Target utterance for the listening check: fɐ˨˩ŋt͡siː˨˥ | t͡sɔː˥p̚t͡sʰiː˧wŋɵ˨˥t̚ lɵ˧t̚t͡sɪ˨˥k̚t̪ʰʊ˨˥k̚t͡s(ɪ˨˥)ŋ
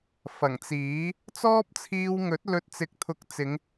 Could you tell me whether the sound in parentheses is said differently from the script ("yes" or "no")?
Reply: yes